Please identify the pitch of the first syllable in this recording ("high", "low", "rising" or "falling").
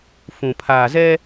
low